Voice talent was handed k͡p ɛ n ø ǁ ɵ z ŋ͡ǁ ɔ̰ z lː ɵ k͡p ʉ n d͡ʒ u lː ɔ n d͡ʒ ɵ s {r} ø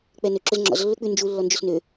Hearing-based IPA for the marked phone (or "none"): n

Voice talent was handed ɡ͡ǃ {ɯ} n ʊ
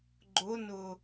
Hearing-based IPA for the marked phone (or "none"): ʊ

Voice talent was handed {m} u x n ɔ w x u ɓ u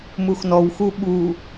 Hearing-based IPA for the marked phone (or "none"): m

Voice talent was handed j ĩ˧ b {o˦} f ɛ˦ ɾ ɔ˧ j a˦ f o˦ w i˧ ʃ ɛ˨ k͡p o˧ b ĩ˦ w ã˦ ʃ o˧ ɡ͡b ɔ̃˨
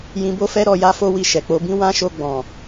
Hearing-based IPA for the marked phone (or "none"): o˦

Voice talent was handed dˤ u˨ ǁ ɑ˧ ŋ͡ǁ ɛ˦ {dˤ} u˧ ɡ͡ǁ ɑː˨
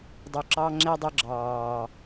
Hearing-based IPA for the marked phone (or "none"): dˤ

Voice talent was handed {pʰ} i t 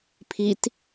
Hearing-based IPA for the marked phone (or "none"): pʰ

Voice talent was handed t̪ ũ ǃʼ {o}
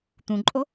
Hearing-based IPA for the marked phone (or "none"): o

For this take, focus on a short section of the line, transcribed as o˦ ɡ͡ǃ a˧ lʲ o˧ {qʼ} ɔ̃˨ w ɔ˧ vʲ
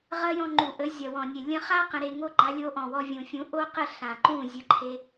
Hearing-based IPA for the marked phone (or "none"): ʔ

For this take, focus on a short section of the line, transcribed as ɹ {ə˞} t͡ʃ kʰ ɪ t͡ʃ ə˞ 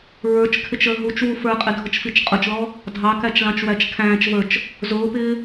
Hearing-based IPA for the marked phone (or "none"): ə˞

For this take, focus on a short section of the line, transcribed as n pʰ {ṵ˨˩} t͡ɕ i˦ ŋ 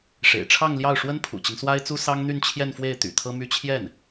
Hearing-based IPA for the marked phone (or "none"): ṵ˨˩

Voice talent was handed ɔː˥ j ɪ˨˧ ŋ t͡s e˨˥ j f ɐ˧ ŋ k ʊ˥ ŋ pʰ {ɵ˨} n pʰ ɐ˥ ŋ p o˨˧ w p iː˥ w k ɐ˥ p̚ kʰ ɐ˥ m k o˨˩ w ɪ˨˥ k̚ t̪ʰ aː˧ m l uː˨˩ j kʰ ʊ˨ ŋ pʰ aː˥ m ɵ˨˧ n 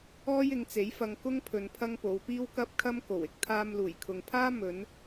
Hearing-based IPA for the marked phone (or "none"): ɵ˨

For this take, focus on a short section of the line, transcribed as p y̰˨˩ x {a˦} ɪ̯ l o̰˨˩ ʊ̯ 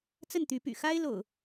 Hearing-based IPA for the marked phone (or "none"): a˦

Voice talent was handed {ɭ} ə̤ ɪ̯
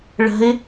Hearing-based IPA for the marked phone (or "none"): ɭ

